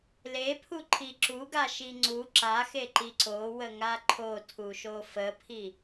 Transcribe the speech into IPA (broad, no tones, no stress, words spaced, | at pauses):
lepʰuǃʰi ǁuɡaʃi ŋ͡ǀu ǁaxeǃi ǀowəŋa ǃʰotʰuʃo fəpʰi